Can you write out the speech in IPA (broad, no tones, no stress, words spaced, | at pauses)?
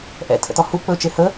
ʔɛ̰tʰə̰tɔ hu k͡pɵt͡ʃe hə